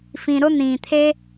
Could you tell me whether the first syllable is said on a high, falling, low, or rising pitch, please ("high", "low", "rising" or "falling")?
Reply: low